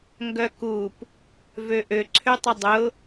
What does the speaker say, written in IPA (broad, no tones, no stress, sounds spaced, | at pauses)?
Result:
ŋ ɡ œ k u p | v ø ʔ ø ǀʰ ø tˤ ə dˤ ʊ